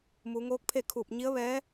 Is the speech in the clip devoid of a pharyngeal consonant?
yes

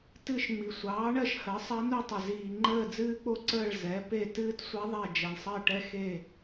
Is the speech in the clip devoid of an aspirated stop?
yes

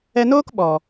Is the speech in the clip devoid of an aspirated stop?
yes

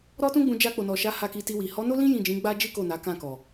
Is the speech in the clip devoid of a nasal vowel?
no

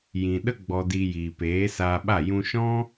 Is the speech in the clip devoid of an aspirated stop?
yes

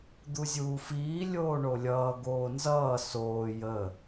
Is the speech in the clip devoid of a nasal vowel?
yes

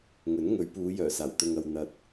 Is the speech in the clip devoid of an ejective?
yes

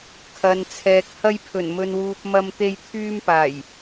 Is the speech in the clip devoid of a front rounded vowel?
no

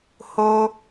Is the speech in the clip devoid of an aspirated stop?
yes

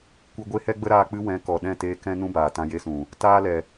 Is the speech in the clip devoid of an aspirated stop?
yes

